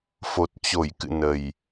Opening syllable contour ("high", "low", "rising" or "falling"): low